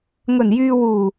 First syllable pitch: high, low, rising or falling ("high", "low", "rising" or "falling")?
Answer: low